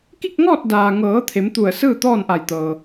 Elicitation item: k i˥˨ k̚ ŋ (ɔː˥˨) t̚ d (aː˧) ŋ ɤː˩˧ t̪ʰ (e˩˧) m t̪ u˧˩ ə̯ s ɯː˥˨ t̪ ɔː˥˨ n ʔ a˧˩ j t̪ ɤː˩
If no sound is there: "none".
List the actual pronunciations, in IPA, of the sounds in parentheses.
ɔː˥˨, aː˩, e˩˧

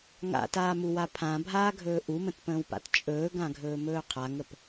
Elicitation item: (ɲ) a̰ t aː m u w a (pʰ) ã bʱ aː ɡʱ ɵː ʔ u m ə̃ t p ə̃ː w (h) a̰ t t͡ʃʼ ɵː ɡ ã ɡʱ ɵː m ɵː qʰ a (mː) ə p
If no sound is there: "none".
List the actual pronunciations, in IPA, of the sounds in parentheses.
ŋ, pʰ, p, ŋ

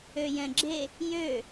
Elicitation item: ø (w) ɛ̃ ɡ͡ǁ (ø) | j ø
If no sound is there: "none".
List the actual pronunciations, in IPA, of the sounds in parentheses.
j, e

